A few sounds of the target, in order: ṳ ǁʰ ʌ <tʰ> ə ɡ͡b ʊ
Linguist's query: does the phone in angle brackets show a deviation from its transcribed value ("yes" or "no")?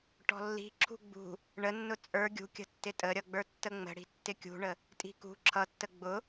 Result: yes